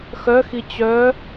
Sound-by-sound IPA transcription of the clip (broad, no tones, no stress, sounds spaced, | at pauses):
x œ x i t͡ɕ œ